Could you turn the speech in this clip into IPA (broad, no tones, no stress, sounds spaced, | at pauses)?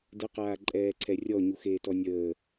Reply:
d ə q aː ǃʼ ɛː ǀʰ ɛ rʲ ɔ ɲ u x eː t ɔ nʲ əː